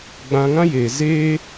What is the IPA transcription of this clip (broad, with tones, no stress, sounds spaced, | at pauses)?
ɡ͡b ã˧ ŋ ã˦ j eː˨ z eː˧